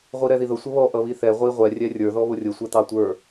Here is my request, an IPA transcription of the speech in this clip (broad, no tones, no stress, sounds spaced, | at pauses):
ʁʷ i ɾ ɛ ð i ð ʊ sʷ ʌ β ɔ ʔ ʌ β i θ ɛ ʁʷ i ʁʷ ɛ rʲ ɛ rʲ ə˞ ð ɔ β ʊ rʲ ʊ sʷ ɛ t̪ ɑ tʷ ə˞